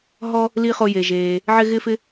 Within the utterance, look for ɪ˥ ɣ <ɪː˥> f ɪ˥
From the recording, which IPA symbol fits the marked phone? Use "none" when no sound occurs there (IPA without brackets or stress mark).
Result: ɪː˥